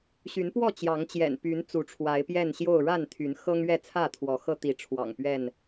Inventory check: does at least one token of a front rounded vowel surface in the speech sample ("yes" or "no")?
yes